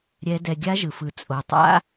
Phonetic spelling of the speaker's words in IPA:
ɾʲɛ˧˥dɛ˧ ɡʲa˧˥ʒɯ˩fɯ˩ t͡sʼo˩tˤa̰˧˥

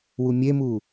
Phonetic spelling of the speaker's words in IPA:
wumʲemu

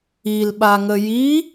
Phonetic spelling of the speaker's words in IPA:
ilɓaŋə ji

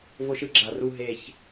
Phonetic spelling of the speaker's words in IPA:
vo˦ʃɯ˦ɡ͡ǁa˨˩ru˦˨ ɦe˨˩ç

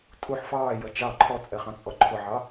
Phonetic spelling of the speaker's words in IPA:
tʼuħ fɑːjʌ t͡ʃɑ ǃʰɔt͡sʼɛχɑ̃t͡sʼɔ ǃʰʊʕɑ

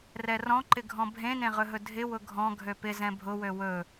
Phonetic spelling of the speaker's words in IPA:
rɛrɔ̃ǃɪɡʱɔ̃ bʱẽnẽʁɵɦɵ dʱɪ wʊɡʱɔ̃ ɡʱøpɪ zɛ̃bʱʊwø wɵ

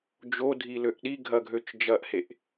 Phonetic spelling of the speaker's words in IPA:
d͡ʒodʱiløʔ ɗiɡʱɐɡʱøt͡ʃ d͡ʒɐʔheʔ

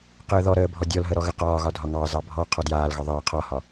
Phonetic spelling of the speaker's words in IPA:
qəːðɔɾəː bʱɔdʲɔlɦə ɾɔɣəqɒːɣɒ dʱɒŋɑzɑ bʱɔ qʰɔdjaːlɣɒ ðˤəː qʰɒhɒ

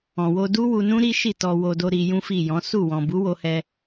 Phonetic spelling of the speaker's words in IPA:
ɔ̃˨ wo˧ du˦wu˧nũ˦ ɾi˦ʃi˦˨tɔ˧ wo˧do˧ ɾi˧jũ˦fi˦˨jɔ̃˨˦ su˦˨ wɔ̃˨bu˨˦wo˧hɛ˧

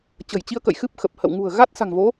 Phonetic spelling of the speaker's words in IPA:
t͡ɕə̤˨˩jt͡ɕi˧ə̯kə̰˧˨j xɨ˦˥p̚xə˨˩p̚ hə̰˧˨wŋṳ˨˩ə̯ ɣa˦˥t̚sa̤˨˩ŋvo˨˦

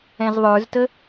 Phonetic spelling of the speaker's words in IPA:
ɛ̃zðˤə˞ztə

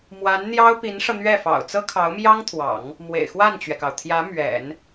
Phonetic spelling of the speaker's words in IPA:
mwa˧˥nn̪jɑ˥ʊ̯ pi˧˥nʂɤ˧n̪ɥɛ˥˩fɑ̰˨˩ʊ̯ t͡sɤ˥kʰɑ˧˥ʊ̯mjɑ˥ŋt̪ʰwɑ̰˨˩˦ŋ | mwḛ˨˩ɪ̯xwa˥˩nt͡ɕɥɛ˩kɑ˩ʊ̯ t̪ʰjä˧˥ mɥɛ̰˨˩˦n

